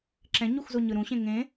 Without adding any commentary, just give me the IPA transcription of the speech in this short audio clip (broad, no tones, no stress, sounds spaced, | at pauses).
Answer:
ǁ ɛ̃ ɲ u x z o ɲ ɯ ɾ ũ ɕ ẽ ŋ ẽ